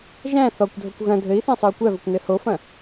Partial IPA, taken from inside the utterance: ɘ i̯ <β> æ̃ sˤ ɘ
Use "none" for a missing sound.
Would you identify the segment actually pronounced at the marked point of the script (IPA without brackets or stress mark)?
θ